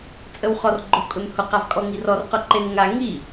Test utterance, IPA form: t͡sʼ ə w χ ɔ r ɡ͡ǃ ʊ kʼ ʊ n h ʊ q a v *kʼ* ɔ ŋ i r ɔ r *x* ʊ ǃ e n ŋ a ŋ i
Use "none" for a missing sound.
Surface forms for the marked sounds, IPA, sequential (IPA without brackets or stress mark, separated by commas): kʼ, q